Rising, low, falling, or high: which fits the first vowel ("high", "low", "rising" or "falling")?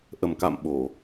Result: low